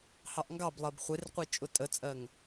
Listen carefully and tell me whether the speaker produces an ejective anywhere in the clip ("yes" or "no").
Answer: yes